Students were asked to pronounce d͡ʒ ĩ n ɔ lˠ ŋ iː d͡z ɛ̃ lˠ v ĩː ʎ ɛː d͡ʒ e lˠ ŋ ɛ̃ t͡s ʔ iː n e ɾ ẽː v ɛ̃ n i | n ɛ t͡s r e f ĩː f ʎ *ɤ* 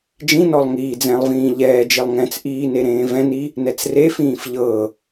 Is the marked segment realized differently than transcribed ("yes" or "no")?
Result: no